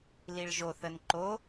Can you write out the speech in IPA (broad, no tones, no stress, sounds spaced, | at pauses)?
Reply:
l i ɭ ʒ o θ ə n ǃ o